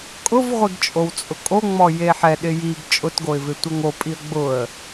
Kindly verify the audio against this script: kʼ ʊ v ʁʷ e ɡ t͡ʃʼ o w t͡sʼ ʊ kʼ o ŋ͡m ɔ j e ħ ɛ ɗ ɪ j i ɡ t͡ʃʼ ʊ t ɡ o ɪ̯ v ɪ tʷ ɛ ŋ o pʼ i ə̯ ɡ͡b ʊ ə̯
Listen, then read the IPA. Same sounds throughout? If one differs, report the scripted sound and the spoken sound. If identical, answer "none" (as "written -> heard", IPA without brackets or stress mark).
none